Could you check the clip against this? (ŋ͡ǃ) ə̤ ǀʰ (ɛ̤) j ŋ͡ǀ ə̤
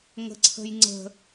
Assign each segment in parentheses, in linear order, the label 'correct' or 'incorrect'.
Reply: incorrect: ŋ, incorrect: ə̤

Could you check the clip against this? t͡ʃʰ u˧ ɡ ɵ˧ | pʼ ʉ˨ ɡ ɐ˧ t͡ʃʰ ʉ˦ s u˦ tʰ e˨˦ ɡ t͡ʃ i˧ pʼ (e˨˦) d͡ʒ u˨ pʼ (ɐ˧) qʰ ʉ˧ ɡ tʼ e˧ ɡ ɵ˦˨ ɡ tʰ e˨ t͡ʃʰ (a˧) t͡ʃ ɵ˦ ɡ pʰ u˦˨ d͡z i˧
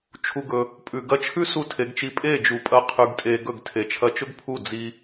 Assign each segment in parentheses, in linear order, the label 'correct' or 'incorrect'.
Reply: incorrect: e˦˨, correct, incorrect: ɐ˧

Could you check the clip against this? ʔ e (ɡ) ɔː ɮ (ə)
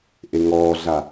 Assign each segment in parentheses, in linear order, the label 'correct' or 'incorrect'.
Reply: incorrect: ŋ, incorrect: a

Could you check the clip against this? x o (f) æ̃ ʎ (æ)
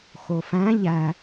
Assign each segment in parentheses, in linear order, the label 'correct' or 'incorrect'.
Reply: correct, correct

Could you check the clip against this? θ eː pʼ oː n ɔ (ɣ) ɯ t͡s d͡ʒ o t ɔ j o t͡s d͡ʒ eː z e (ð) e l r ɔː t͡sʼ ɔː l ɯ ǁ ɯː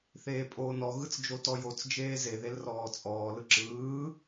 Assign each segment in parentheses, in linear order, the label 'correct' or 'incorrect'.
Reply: correct, correct

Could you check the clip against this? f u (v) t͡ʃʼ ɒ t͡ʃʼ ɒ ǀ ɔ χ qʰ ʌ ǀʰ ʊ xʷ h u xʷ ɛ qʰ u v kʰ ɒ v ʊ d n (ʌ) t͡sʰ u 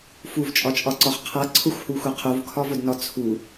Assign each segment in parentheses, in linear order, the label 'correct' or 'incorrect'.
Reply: correct, incorrect: ɒ

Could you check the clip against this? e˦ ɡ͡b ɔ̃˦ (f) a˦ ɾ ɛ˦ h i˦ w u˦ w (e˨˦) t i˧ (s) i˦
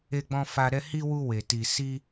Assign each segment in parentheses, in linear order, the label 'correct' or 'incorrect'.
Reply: correct, incorrect: e˧, correct

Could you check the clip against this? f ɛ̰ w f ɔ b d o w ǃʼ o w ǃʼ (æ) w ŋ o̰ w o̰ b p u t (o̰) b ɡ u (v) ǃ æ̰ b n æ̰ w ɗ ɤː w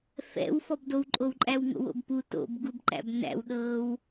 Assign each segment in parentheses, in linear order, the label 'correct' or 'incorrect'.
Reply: correct, correct, incorrect: b

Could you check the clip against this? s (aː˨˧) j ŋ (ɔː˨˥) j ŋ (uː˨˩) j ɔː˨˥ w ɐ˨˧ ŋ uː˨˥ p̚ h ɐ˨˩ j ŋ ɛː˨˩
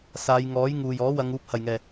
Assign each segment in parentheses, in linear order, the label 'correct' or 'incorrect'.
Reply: correct, correct, correct

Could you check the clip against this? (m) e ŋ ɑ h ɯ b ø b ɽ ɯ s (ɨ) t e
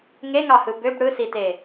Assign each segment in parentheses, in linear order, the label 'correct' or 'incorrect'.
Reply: incorrect: ŋ, incorrect: i

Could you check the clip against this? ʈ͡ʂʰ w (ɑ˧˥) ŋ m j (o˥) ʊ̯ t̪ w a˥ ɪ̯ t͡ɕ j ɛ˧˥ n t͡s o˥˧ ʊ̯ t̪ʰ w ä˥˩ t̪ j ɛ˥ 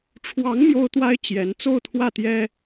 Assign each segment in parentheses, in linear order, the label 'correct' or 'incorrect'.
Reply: correct, correct

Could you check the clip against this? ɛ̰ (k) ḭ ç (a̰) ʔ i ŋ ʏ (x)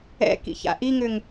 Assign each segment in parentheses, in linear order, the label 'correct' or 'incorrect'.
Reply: correct, correct, incorrect: ŋ

